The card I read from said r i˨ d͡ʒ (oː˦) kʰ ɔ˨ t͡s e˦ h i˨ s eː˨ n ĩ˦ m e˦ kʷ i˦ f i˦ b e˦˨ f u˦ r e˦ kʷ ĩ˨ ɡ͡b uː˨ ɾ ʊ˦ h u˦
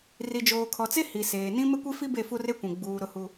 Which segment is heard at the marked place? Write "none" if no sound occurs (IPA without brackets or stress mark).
oː˨